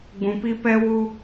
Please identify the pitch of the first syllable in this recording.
low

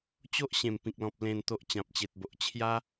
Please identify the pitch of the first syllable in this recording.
high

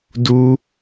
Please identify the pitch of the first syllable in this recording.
high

